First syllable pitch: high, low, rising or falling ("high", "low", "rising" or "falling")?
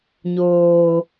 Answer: high